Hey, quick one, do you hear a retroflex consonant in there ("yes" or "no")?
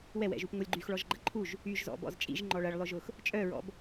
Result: yes